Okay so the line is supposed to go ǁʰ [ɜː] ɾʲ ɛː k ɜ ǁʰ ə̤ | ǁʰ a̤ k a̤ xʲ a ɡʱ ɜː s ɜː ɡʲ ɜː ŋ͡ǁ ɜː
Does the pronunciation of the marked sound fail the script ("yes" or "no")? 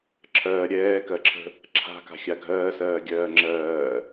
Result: no